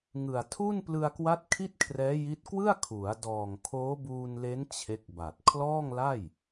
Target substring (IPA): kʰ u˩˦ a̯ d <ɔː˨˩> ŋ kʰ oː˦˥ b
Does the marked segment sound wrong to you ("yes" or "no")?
no